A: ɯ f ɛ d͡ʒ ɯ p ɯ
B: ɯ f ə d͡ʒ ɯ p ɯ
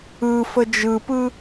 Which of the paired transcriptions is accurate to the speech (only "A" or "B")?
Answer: B